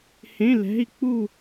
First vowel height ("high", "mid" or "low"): mid